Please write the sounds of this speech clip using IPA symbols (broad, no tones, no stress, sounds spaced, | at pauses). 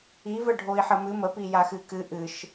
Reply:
i v ə ɖʱ o i̯ ħ ə m ɨ m ə p i j a x ɨ k ɨ ʔ ɨ ʃ